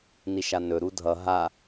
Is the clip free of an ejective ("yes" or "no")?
yes